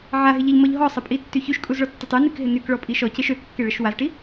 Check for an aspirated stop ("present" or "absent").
absent